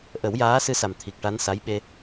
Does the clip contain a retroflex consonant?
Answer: yes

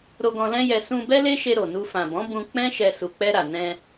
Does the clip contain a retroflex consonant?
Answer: no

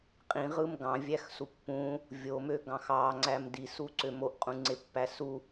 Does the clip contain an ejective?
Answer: yes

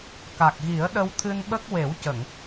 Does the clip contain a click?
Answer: no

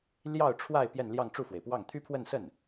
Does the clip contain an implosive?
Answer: no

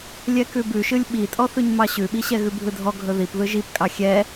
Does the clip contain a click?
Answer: no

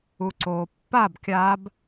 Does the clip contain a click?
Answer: yes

